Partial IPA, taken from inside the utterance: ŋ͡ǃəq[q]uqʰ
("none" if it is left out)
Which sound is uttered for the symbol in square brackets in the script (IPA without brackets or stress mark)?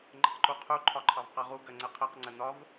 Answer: ǃ